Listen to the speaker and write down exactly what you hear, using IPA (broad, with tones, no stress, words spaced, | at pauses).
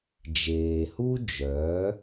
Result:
d͡ʒeː˩hu˥ d͡ʒœː˩˥